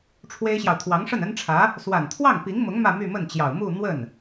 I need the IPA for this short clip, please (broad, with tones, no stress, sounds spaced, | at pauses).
ʈ͡ʂʰ w e˥ ɪ̯ ɕ j ɑ˨ ʊ̯ t̪ʰ w ɑ˧˥ ŋ ʂ ə˥˩ n ə˥ n ʈ͡ʂʰ ä˧˥ | s w a˨˩ n t̪ʰ w ɑ˥˩ ŋ p i˧˥ ŋ m ʊ˧˥ ŋ m ä˥˧ m y˥˧ m ə˥˩ n t͡ɕ j ɑ˨˩ ʊ̯ m u˥˧ n̪ w ə˥˩ n